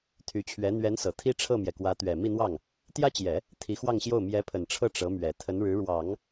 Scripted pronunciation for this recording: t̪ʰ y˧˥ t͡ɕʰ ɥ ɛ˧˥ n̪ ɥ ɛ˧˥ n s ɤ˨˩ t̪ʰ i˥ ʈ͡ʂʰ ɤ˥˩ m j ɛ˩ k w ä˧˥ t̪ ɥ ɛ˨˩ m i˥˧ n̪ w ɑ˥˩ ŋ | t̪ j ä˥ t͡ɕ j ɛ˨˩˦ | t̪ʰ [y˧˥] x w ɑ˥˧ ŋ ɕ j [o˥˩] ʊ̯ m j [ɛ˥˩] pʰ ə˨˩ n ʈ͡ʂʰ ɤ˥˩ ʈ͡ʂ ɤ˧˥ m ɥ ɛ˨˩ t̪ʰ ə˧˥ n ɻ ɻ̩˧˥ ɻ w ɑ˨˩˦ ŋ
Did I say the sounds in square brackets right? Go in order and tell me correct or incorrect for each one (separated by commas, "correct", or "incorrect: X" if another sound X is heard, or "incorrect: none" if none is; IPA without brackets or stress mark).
incorrect: i˧˥, correct, incorrect: ɛ˧˥